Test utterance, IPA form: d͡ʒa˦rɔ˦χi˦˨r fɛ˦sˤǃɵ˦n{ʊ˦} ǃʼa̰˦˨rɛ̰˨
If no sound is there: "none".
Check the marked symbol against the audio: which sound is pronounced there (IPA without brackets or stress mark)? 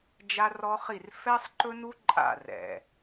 u˦